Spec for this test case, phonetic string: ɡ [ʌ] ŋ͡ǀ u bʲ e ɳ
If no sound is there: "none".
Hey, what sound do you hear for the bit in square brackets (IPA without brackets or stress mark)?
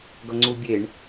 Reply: ʌ